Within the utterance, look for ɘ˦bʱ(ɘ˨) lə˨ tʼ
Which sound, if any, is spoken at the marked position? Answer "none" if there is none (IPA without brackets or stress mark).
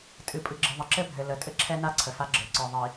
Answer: ɘ˨